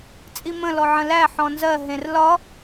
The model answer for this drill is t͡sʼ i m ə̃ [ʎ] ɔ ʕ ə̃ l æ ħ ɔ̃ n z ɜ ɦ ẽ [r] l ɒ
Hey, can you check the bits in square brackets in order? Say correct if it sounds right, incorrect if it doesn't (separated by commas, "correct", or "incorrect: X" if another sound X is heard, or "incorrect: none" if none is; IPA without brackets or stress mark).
incorrect: l, correct